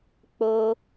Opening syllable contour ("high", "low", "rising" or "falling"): high